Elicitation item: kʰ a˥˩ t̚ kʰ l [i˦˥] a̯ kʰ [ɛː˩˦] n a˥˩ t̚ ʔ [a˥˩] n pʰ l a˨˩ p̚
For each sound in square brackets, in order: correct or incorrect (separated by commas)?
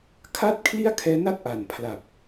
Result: incorrect, incorrect, incorrect